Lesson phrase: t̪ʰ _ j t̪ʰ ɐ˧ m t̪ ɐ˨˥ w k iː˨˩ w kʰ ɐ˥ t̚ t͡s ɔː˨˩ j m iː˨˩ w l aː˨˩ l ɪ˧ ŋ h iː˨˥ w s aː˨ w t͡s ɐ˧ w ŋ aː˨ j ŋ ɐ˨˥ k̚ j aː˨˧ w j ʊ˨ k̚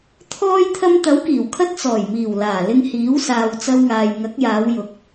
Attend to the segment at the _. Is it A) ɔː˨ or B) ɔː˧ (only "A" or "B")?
B